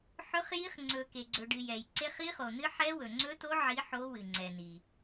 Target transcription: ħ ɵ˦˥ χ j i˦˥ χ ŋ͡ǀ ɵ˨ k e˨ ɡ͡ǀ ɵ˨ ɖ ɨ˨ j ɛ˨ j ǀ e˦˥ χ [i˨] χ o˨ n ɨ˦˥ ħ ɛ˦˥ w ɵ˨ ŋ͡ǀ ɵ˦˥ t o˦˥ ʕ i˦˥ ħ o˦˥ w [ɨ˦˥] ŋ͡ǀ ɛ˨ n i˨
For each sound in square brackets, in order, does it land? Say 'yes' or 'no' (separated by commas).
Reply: no, no